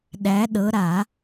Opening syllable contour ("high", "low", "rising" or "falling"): rising